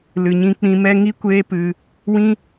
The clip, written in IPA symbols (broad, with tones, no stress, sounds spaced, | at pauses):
l ɨ˨ ɲ ĩ˧ k͡p ĩ˧ m ɛ˦ ŋ i˦ kʷ eː˦ p ɨ˧ | w ĩ˦